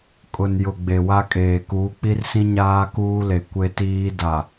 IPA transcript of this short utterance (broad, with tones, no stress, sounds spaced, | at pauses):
kʼ ʊ˨ n j ʊ˨ ɡ͡b e˨ w a˦ kʼ eː˨ k uː˨˦ k͡p i˦ r s ĩ˦ ɲ aː˦ k uː˦ l e˨ kʷ e˦ t iː˦ d a˨